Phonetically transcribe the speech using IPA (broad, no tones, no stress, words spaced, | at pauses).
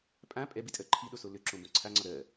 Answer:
pʼã pʼɛbitʼɜ ǃʰiɗoso løǁõbõ ǀʰaŋ͡ǀɒ ɾɜ